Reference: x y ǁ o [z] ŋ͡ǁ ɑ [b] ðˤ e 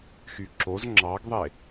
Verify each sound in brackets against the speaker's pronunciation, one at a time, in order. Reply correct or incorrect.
correct, incorrect: ɡ

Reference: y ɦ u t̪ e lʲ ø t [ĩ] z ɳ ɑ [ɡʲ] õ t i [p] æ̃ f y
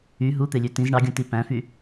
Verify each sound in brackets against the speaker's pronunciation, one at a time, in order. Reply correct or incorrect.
correct, correct, correct

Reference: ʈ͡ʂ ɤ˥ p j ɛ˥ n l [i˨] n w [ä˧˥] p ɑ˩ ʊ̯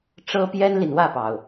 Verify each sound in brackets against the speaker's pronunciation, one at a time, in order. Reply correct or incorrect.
correct, incorrect: ä˥˩

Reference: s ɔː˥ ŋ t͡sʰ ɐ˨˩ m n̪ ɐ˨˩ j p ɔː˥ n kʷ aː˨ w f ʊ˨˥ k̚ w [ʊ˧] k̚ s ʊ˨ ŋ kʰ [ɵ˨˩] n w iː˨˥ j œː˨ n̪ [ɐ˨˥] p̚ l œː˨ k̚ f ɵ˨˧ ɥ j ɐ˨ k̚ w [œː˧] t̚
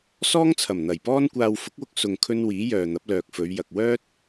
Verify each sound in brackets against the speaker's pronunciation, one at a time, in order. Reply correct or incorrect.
correct, incorrect: ɵ˧, correct, incorrect: œː˥

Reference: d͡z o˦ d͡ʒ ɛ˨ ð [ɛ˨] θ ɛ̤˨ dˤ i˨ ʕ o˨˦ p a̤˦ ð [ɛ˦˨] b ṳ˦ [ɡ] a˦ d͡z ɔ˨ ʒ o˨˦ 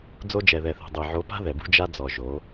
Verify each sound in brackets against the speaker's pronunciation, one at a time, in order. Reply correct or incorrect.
correct, incorrect: ɛ˨, incorrect: d͡ʒ

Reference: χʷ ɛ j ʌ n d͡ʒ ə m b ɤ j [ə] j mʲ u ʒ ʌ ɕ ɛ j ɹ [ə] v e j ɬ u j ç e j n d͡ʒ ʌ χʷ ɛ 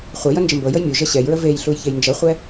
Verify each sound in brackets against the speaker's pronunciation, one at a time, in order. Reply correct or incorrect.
correct, correct

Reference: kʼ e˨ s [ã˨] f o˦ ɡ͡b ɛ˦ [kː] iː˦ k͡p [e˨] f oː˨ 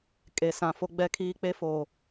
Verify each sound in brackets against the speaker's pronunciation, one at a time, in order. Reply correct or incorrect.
correct, incorrect: kʰ, incorrect: e˦

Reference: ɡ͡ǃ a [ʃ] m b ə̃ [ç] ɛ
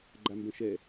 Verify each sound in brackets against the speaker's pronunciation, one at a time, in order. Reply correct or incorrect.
incorrect: none, incorrect: ʃ

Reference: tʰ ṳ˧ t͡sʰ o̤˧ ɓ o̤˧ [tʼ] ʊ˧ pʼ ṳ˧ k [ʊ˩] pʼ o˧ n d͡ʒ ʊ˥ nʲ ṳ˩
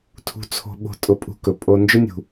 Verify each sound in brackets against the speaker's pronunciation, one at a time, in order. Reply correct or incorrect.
correct, incorrect: ɵ˩

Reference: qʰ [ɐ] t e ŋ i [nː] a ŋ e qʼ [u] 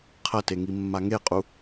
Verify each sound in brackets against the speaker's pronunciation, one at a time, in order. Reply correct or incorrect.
correct, incorrect: mː, correct

